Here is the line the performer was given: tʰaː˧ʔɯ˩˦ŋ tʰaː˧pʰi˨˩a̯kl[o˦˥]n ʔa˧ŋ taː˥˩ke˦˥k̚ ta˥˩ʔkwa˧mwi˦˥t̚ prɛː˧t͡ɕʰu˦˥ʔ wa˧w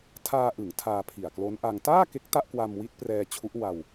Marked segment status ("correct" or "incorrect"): correct